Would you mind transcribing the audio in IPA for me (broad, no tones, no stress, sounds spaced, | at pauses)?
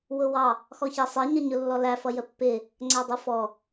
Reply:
w ʊ w ɑ | x ɔ ç æ sˤ ɛ ɲ ʌ ɲ ʊ lː ɔ l æ f ʌ j ə pː ɪ | ŋ͡ǀ æ dˤ u f ɔ